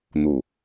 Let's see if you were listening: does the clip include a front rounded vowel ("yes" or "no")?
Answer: no